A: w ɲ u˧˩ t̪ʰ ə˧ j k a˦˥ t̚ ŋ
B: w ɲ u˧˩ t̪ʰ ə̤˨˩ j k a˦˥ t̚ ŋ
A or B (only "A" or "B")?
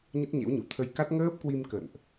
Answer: A